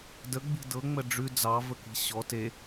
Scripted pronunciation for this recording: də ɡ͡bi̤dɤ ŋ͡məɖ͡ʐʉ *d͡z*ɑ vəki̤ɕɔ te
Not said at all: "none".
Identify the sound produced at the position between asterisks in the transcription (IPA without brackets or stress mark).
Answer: d͡z